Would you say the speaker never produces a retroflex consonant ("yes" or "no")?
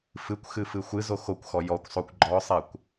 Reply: yes